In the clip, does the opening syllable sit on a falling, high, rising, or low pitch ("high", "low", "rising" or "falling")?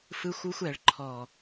high